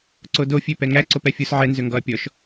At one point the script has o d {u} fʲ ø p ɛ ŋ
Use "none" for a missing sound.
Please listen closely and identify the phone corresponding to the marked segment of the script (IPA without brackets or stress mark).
o